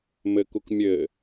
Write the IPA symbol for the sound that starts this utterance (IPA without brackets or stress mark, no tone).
m